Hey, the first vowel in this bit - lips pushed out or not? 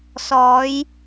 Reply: yes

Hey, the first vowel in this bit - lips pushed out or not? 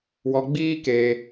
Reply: yes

